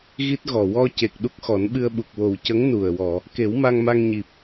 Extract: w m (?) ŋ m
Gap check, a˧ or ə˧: a˧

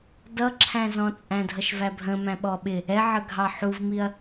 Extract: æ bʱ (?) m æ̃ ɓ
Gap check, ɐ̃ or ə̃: ə̃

